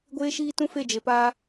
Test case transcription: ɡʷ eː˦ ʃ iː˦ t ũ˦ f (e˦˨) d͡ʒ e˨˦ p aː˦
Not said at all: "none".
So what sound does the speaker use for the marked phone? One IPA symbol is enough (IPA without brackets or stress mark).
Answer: e˦˨